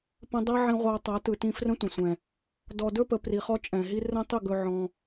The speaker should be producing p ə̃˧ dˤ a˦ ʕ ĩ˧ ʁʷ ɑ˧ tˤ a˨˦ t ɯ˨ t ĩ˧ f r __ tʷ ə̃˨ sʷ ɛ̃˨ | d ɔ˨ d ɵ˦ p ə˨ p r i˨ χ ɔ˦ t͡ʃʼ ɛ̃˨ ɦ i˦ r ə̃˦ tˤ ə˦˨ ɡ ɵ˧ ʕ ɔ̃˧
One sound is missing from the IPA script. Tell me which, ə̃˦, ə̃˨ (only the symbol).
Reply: ə̃˦